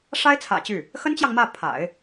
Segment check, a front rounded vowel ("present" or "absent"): present